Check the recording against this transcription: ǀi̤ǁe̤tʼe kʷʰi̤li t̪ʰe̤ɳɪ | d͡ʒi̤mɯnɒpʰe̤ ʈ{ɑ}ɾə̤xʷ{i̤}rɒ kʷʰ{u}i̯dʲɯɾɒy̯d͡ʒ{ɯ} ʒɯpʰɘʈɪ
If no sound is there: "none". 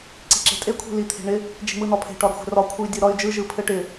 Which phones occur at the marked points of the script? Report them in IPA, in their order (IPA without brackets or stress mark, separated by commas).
ɒ, e̤, ɯ, ɯ